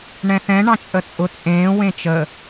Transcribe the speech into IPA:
ɳ ɛ̃ θ ɛ̃ ɳ ɑ̃ t͡ʃʼ ə t͡sʼ ʊ t͡sʼ ẽː w ẽ t͡ʃ ə

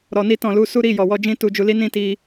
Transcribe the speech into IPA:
ɾ ɔ˧ n i˦ t ɔ̃˦˨ l u˨˦ s u˦ ɾ i˦˨ j ɔ˨ w ɔ˧ d͡ʒ ĩ˦ t u˧ d͡ʒ u˧ l i˦ n ĩ˦˨ t i˧

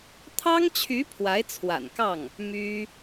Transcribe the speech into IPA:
t̪ʰ ɑ˥ ŋ t͡ɕʰ y˧˥ pʰ w a˧˥ ɪ̯ t͡sʰ w a̰˨˩ n k ɑ˥˩ ŋ | m y˥

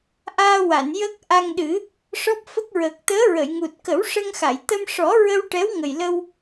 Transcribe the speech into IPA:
ʔ aː˧ w a˨˩˨ n j ə˦˥ k̚ ʔ a˧ ŋ ɗ ɨ˨˩˦ | ʂ ɔ˦˥ p̚ f ə˦˥ k̚ ɹ əː˨˩ k̚ t̪ əː˧˥ ɹ ə˨˩˨ j ŋ u˨˩ t̚ k ə˨˩˦ w ʂ ə˧ ŋ x a˨˩˨ j t̪ ə˧ m ʂ ɔ˨˩˦ ɹ ə˧ w ʈ ɛ˧˥ w ŋ ə˨˩ j l ə˧ w

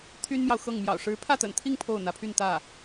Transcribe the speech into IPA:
t̪ʰ y˥ n m j ɑ˨ ʊ̯ x ɤ˥˩ ŋ m j ɑ̰˨˩ ʊ̯ ʂ ɻ̩˧˥ pʰ ä˥˩ t̪ ə̰˨˩ n t̪ʰ i˥˧ ŋ pʰ o˥˩ ʊ̯ n̪ ä˧˥ pʰ y˥˧ n t̪ ä˥˩

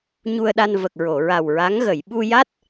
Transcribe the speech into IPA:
ɲ u˧ ə̯ ɗ a˧ n v ə˨˩ k̚ ɹ o˨˩˨ ɹ a˨˩ w ɹ a˧˥ ŋ ɣ ə˨˩˨ j ɓ u˧ j a˦˥ t̚

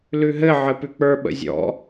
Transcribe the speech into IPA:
l ʉ ɦ ɘ ʕ ɘ p ʉ k͡p ə˞ ɓ ə̰ zʲ ɔ̰

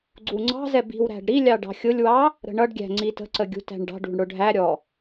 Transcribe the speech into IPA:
ɡ͡ǀ u ŋ͡ǀ ɑ̤ z ɛ b i̤ w ɾ æ̤ ɖ ɾ i lʲ ɑ ɖ ɑ̤ xʲ ʊ lʲ w ɑ | ɾ ə̤ ɳ ʌ ɖ ɡʲ æ̤ ŋ͡ǀ i t ə̤ ǀ ə ɡʲ ṳ t æ̤ ɳ ɖ ɑ̤ ɖ ṳ ɳ ɽ ʊ ɖʱ æ ɾʲ ɔ

